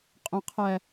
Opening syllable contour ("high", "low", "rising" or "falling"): low